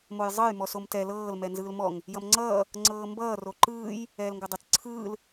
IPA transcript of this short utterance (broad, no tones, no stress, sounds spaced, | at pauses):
m o j zˤ ɤ j m ɔ s o m t ɛ l ɤː l m ɛ n z ɯː l m ɔ ŋ | j ʌ m ŋ͡ǀ ʌː | ŋ͡ǀ ɤː m b ʌː r o ǃ ɯː j | ɛː l ŋ ɡ ɤ dˤ ʌ t͡s ǀʰ ɯː l